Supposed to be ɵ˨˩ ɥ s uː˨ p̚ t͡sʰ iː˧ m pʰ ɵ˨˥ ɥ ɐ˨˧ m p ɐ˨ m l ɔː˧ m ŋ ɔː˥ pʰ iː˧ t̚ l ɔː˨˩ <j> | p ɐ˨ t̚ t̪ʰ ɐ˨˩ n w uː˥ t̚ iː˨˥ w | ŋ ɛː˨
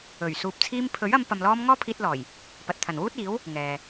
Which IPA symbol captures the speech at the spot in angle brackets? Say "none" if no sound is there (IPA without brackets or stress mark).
j